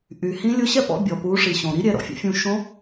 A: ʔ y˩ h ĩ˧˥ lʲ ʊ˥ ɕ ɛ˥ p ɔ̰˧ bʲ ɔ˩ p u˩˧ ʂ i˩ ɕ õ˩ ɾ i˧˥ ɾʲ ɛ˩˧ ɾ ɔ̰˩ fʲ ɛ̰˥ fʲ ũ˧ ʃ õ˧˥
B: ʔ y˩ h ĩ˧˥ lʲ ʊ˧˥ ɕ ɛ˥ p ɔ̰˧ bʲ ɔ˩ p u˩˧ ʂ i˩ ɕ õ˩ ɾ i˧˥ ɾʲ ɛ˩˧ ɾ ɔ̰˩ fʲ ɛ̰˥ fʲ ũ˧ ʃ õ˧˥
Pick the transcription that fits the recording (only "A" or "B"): B